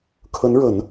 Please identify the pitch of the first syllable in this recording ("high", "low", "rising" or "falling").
rising